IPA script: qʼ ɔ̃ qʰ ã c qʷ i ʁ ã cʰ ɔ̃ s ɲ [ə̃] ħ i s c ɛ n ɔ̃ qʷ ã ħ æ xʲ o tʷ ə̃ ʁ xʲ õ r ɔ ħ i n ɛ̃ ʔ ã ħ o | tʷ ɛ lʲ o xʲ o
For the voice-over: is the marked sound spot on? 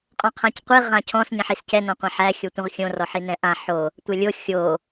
yes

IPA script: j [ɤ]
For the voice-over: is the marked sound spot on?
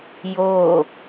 no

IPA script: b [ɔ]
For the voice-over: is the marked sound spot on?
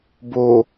no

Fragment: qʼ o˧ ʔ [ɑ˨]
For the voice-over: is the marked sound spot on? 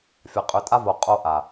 no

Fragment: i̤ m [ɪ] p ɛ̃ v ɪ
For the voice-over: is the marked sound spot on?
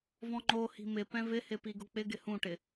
yes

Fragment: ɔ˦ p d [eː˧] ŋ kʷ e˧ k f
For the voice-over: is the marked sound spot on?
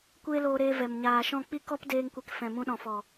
yes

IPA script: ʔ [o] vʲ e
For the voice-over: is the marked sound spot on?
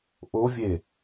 yes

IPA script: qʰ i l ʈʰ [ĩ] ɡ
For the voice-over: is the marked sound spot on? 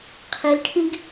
yes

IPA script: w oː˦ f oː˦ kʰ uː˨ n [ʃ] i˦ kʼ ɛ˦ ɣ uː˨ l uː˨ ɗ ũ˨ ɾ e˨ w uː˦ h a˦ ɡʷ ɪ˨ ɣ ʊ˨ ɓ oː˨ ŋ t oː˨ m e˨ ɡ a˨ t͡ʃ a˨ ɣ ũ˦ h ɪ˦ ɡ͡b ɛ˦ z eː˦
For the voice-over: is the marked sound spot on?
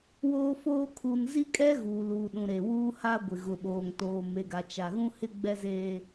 no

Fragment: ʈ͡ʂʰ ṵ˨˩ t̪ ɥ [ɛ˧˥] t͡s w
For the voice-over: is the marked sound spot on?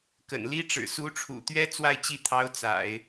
no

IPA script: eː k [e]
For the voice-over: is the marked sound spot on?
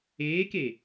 yes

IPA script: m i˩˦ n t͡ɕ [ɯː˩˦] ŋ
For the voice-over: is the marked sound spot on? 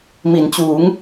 no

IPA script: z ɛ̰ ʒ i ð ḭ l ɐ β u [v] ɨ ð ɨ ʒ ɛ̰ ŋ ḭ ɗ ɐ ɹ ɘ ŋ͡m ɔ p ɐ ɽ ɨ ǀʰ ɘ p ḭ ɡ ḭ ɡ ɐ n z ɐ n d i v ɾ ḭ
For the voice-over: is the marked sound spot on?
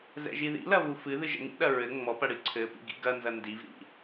no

